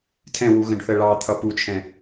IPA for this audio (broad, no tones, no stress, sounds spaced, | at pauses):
tʰ ɛ̃ w u ɣ ə̃ ɖ θ ə ɭ ɑ t̪ʰ ʌ p u t͡ʃʰ ɛ̃